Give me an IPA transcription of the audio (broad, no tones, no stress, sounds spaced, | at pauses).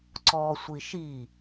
ǀ ɔ sʷ i ʃ i